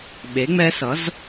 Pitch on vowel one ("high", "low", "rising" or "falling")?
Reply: rising